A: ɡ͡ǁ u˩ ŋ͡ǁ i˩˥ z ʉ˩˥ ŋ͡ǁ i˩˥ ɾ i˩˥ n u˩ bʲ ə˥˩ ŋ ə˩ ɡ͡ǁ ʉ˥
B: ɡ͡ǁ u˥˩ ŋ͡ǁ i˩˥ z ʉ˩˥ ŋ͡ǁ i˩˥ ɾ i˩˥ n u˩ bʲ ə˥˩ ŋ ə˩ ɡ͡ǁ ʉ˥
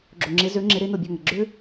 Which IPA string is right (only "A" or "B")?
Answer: A